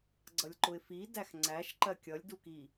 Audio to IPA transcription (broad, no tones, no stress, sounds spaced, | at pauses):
ɡ͡ǀ ʌ lʲ ǃ ʊ ɪ̯ f i d æ x ŋ͡ǀ æ ʃ ǃ ɜ kʲ ʌ lʲ d u k i